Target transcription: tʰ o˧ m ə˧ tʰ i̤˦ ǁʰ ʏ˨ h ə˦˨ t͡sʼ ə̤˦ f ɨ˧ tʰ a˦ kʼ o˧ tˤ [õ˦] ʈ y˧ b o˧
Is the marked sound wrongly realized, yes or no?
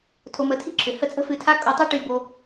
yes